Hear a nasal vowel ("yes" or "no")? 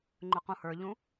yes